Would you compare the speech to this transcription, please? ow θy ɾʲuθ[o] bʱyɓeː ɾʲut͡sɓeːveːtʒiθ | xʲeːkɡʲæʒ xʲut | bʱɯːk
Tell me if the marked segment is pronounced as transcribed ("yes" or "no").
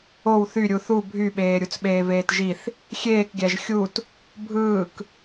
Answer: no